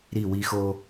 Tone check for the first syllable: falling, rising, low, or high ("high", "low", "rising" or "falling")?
falling